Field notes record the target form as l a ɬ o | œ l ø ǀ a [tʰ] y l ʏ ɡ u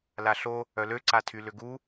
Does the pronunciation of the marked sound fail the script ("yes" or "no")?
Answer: no